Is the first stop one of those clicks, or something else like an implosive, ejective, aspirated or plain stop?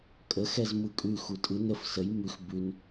ejective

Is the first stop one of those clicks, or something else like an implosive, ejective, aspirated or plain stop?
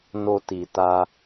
plain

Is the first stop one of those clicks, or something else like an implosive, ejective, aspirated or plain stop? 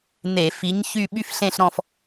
implosive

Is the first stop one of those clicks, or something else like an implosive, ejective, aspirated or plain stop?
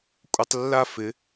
ejective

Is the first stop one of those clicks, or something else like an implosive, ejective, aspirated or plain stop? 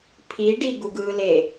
aspirated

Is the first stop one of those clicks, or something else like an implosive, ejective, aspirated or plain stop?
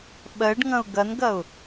implosive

